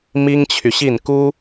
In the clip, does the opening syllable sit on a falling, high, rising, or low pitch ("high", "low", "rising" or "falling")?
high